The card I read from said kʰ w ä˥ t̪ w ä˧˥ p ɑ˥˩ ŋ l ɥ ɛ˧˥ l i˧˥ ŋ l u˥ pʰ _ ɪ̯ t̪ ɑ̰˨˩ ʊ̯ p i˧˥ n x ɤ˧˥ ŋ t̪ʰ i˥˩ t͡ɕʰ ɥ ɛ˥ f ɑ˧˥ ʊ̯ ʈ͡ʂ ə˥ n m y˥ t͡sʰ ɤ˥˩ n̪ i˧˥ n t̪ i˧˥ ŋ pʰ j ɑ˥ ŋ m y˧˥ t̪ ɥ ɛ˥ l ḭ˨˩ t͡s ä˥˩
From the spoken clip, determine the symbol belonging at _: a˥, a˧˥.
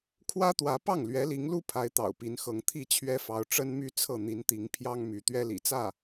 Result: a˧˥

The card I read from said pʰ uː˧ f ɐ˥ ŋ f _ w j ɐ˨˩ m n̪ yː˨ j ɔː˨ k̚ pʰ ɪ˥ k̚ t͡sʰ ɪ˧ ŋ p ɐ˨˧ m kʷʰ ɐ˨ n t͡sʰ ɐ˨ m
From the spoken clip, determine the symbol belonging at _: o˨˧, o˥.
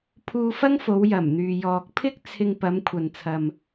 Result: o˨˧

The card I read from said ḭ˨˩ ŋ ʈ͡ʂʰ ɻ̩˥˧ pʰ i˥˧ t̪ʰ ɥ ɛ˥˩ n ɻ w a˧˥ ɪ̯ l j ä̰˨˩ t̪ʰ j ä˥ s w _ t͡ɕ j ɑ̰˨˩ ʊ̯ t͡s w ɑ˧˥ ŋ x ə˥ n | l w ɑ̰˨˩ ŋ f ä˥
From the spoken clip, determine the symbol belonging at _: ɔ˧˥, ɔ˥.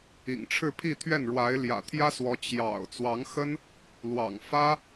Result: ɔ˧˥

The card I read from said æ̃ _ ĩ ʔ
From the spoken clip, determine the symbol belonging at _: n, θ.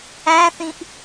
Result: θ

